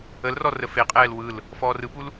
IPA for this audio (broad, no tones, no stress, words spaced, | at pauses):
əlrɔ rəfeqʼɛːl wɯl | fɔːrɯpul